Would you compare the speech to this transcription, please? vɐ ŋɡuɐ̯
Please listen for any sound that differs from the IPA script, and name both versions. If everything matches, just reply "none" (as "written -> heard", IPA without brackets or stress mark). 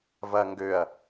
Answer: u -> ø